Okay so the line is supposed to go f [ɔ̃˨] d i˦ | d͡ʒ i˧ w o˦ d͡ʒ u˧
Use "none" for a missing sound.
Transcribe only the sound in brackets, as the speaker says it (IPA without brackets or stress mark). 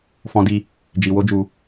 ɔ̃˦